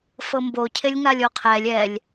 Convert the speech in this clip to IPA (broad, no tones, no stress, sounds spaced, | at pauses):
f ɤ m b o cʰ e lʲ ŋ a lʲ o qʰ ɛ lʲ ɛ lʲ